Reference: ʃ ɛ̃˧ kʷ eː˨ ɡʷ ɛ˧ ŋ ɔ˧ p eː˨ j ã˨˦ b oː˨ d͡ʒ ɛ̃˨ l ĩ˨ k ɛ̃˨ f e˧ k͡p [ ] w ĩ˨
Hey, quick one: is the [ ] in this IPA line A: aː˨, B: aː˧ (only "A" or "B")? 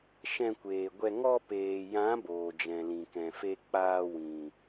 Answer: B